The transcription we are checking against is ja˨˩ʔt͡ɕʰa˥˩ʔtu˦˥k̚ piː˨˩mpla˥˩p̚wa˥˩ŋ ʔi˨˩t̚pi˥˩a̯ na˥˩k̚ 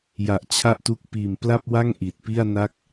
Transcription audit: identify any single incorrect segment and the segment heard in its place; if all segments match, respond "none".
none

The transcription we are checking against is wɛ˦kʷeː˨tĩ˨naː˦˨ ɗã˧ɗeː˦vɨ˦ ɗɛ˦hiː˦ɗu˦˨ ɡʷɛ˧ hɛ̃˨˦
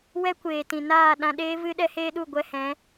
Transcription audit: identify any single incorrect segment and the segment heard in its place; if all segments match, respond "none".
iː˦ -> eː˦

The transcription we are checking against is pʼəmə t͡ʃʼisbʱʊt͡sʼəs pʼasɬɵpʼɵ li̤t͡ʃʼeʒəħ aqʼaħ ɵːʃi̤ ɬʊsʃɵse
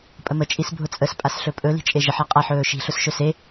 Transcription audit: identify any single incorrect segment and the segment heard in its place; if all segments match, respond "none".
none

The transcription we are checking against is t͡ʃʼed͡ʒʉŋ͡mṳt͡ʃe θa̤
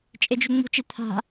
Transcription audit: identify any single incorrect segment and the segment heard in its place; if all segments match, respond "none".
θ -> t̪ʰ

